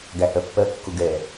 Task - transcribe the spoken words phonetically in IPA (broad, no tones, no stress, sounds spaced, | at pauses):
ɡ æ h ɜ pː ɜ kː ʊ ɡ ɛ